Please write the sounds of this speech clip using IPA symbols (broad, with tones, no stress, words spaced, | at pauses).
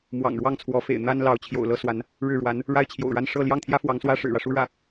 mwɑ̰˨˩ŋɻwɑ˥˩ŋt͡sʰwɔ˧˥fḛ˨˩ɪ̯ n̪a˥nlɑ˧˥ʊ̯ t͡ɕʰjo̰˨˩ʊ̯lɤ˥swa˧˥n | ɻɻ̩˥˩ɻwa˧˥n | ɻa˥ɪ̯t͡ɕʰjo̰˨˩ʊ̯ɻa˥˧n ʂɤ˥˧ ljɑ˥˩ŋt̪ʰjä˥ fwɑ˧˥ŋswä˥ ʂɻ̩˨˩ɻä˦ʂu˥ ɻä˥˩